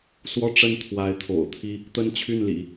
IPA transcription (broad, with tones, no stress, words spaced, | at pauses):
swɔ˥˧ʈ͡ʂə˥˩n t̪ʰwa˧˥ɪ̯t̪ʰo̰˨˩ʊ̯t̪ʰi˥ | t̪ə˥nt͡ɕʰy˥˩nlḭ˨˩˦